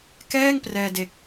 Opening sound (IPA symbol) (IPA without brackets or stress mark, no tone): k